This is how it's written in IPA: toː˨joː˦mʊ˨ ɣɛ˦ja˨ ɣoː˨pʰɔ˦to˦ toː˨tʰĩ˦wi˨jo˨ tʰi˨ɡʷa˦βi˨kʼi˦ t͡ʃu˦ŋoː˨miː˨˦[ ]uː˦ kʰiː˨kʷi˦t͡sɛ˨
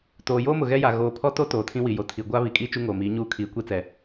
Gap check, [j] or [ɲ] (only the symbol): ɲ